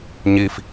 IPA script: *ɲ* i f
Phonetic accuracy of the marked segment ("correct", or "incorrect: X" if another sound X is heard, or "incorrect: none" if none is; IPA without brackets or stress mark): correct